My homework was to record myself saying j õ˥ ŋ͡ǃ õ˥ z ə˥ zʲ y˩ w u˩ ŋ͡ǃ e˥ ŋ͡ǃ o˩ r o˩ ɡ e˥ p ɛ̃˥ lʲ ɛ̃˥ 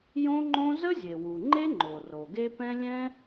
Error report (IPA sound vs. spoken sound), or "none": y˩ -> e˩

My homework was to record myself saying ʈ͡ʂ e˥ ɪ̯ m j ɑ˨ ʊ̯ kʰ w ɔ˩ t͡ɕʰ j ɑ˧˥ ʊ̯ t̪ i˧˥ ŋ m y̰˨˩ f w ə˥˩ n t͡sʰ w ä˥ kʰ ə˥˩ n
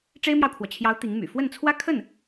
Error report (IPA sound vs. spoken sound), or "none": none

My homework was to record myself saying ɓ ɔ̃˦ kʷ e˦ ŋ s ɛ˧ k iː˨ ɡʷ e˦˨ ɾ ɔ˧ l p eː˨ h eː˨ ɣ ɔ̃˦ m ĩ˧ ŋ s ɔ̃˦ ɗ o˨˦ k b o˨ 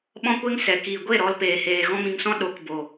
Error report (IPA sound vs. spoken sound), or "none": ɛ˧ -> ɛ˨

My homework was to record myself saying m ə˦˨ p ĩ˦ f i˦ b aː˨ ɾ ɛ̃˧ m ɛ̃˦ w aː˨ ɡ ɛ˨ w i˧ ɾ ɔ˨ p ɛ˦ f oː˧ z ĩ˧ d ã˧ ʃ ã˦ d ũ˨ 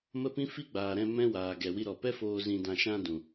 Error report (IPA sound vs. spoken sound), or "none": b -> ɡ͡b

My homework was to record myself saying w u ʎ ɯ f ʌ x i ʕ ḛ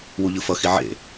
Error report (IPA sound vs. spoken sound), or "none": none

